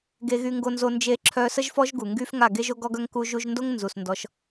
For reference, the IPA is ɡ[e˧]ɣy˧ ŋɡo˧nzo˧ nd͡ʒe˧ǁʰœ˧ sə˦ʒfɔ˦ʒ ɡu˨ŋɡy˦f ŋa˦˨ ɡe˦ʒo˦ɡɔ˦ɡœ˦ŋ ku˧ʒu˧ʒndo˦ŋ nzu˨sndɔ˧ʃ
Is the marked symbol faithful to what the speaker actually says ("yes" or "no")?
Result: yes